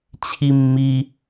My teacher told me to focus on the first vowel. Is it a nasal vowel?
no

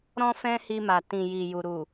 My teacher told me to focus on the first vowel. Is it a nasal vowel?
yes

